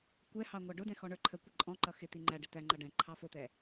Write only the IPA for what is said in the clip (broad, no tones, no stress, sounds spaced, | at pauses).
kʷ ɛ h ɑ ŋʷ ɑ ɖ ʊ d ɛ̃ x ɔ ɳ ə˞ ǃʰ ə kʷ ɪ ǃʼ ɔ̃ ǃ ʌ x ɪ t̪ i ŋ͡ǃ æ ɖ ɪ t̪ æ ŋ͡ǃ ʌ ɖ ɛ̃ ǃʰ ɑ f ʊ t̪ ɛ